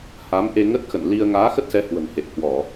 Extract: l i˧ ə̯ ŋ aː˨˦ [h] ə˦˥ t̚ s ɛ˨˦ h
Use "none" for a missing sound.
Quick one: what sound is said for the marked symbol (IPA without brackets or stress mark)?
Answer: x